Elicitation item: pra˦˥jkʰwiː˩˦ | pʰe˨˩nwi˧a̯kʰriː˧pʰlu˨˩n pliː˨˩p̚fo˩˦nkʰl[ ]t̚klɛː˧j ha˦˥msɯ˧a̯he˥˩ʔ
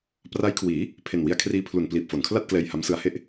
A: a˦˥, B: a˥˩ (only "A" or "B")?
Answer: B